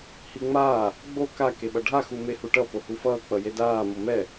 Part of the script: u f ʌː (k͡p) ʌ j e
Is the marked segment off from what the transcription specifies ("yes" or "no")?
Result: no